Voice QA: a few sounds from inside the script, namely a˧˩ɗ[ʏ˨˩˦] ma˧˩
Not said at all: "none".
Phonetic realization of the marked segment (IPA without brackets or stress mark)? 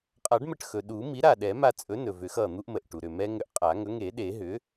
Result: ɛ˨˩˦